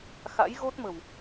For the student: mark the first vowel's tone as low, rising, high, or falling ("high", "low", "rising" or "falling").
rising